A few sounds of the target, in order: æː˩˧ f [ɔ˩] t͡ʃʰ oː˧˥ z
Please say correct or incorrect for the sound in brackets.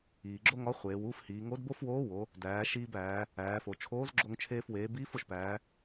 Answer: incorrect